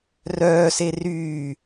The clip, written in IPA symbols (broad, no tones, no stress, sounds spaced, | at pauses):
r œː s e r yː